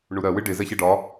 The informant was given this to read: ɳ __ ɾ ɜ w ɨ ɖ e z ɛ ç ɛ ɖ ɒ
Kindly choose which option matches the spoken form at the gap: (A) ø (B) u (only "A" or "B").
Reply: B